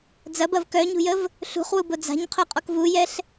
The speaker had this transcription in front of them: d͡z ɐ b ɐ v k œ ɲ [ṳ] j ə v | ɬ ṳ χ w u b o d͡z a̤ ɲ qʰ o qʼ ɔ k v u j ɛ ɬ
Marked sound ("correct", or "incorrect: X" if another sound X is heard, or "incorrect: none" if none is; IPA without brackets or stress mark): correct